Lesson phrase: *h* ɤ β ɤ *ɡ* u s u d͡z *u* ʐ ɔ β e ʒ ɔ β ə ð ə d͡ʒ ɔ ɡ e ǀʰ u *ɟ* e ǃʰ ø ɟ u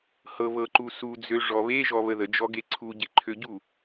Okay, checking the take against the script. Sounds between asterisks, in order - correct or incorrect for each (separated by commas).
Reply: correct, incorrect, incorrect, correct